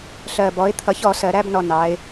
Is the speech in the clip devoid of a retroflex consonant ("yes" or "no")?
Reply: yes